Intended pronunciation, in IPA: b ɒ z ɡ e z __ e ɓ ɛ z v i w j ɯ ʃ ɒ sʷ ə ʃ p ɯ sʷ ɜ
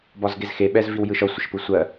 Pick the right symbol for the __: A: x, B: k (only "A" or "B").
A